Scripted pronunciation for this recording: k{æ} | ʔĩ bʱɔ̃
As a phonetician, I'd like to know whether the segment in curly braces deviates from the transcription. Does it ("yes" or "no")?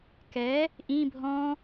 yes